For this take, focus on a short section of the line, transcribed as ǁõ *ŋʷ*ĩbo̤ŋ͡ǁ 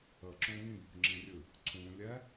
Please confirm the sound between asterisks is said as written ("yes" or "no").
no